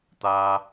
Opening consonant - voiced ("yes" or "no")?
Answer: no